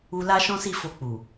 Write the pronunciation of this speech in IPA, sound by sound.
u˧ l a˦ ʃ ɔ̃˦ s i˦˨ f o˧ k͡p u˨

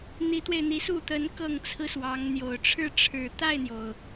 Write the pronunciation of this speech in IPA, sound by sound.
n̪ i˧˥ t̪ w e˧ ɪ̯ n̪ i˧˥ s u˥˩ t̪ ə˧˥ n k ɤ˥˩ ŋ t͡sʰ ɹ̩˥ s w ɑ˧˥ ŋ n̪ j o˨˩ ʊ̯ ʈ͡ʂʰ ɻ̩˥˩ ʈ͡ʂʰ ɻ̩˨˩ t̪ a˥˩ ɪ̯ n̪ j o˩ ʊ̯

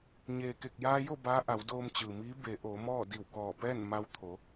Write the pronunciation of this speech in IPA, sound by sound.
ɲ eː˩ k e˧˩ k̚ j aː˧ j o˥˨ b aː˧˥ ʔ a˩˧ w d oː˧ m t͡ɕ ɯː˩ m iː˧˥ b e˩˧ ʔ oː˩˧ m ɔː˥˨ d i˧˩ w k ɔː˧˩ p ɛː˥˨ n m a˧ w t̪ʰ o˩˧

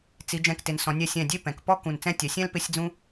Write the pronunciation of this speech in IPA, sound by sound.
t͡s i˩˧ d͡ʒ ɛ̃˧˩ k t ɪ˩˧ n s ɔ̃˩˧ nʲ ɛ˧ sʲ ɛ̃˧˩ dʲ e˥˧ p ɛ̃˩˧ k p ɔ˥ k ũ˧˩ n t͡s ɛ̃˥˧ tʲ ɛ˩˧ sʲ ɛ̃˥ l p ɪ˥˧ sʲ d͡z ũ˥

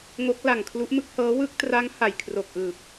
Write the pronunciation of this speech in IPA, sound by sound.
ŋ o˦˥ k̚ l a˨˩ ŋ kʰ l u˦˥ ʔ m ɯ˦˥ k̚ h ɤː˦˥ w ɯ˥˩ k̚ t r a˦˥ ŋ h a˨˩ j kʰ r o˨˩ k̚ ʔ ɯː˨˩ p̚

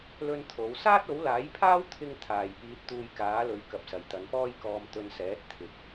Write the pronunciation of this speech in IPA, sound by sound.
l ɵ˥ n t̪ʰ o˨˥ w s aː˥ t̚ o˨˥ w l aː˨˥ j pʰ aː˥ w t̪ʰ ɪ˥ ŋ t̪ʰ aː˨ j p iː˧ t̚ t̪ uː˧ j k aː˨˥ l ɵ˨˥ ɥ k ɐ˨ p̚ s ɐ˨˩ j t̪ ɐ˨˧ n p ɔː˥ j k ɔː˧ m t̪ ɵ˧ n s ɛː˨˥ t̚ t̪ʰ ɪ˨ k̚

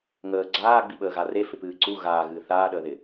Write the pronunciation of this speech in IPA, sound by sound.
ŋ əː ɡ͡ǀ aː ɡ͡b i ɓ əː ɣ a r e f ɪ p ɨː ǀ u ɣ aː ɣ ɨː θ aː ɗ əː ð ɪ

